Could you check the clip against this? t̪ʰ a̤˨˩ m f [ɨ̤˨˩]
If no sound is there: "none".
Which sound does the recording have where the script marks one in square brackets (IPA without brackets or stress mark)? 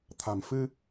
ɨ˧